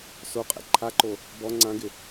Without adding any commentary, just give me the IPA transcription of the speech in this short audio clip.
s o qʼ ɛ̰ ǃʰ a ǃ o | b ɔ ŋ͡ǀ ã ɡ ɪ

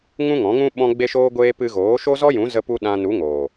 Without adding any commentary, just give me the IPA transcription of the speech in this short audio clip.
ŋ ũ˦ ŋ ɔ̃˨˦ ŋ ũ˦ ɓ ɔ̃˧ ɡ͡b e˧ ʃ oː˧ ɡʷ eː˧ p ɨ˧ ɣ oː˨˦ ʃ o˦ z ɔ˦ j ũ˨˦ z ə˧ p u˧ ɗ ã˧ n u˨˦ ŋ oː˨

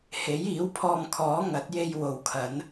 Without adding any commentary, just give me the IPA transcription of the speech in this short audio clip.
h e˨˥ j iː˨˥ w pʰ ɔː˧ m kʰ ɔː˨˥ ŋ ɐ˨˥ t̚ j e˧ j w o˨ w kʰ ɐ˨˥ n

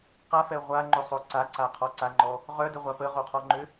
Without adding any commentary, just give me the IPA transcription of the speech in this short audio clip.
q a f ɛ ʁʷ a ŋ͡ǃ ʏ sˤ o ǀ a ǀ a qʰ ɔ ǀ a ŋ͡ǃ ɔ | ʁ œ d ə ʁʷ a p ə ʁ o qʰ ɔ ŋ͡ǃ ʏ

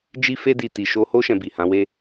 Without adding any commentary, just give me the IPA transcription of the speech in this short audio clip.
d͡ʒ i˦ f e˦ d i˦˨ t i˨ ʃ o˧ h o˦ ʃ ɛ̃˧ b i˨ h ã˨˦ w e˦

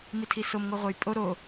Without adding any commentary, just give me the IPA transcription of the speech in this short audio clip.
m i tʰ i s o m ŋ o ʁʷ e j pʼ o ɾ o

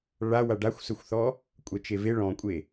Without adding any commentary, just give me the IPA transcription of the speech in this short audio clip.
ɭ a w a ɖ a xʷ s ɵ xʷ θ ɔ | kʷʼ ɛ t͡ʃ e v e ɭ ɔ̃ kʷʼ e

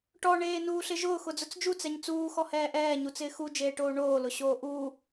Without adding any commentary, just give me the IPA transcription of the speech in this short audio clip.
ʈ ɔ ɳ eː n uː ɬ ɪ ʒ ʊː x ʊ d͡z ʊ t͡s d͡ʒ u t͡s ɛ ɲ t͡s uː x ɔ h ɛː ʔ ɛː ɲ u t͡s ɪː x u d͡ʒ eː ʈ oː ɳ oː l ʊ ɕ oː ʔ u

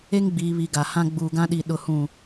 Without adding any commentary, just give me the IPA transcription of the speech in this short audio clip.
e˦ ŋ ɡ͡b iː˨ β i˨ ɡ a˨ h ã˦ ɡ͡b uː˨ ɡ ã˦ ɗ i˨ ɗ ʊ˦ h ũ˦˨

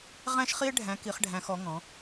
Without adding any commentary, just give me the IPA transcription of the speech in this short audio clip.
ʁ æ̃˧ ʃ χ i˧ e̯ ɖʱ æ̃˩˧ k i˩˧ χ ɖʱ æ̃˩˧ x ɔ˩˧ ŋ ɔ̃˩˧

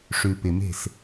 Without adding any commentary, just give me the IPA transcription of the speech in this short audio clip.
ʂ ʉ˨ p ɪ˨ m e̤˦˨ s

